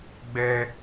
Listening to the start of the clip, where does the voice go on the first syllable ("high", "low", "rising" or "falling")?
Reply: high